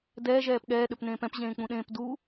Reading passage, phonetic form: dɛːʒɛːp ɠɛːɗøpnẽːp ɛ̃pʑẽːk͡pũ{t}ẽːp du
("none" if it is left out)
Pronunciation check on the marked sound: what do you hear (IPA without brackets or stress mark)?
ɗ